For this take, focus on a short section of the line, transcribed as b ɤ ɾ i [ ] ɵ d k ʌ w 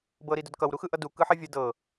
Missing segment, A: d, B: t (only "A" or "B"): A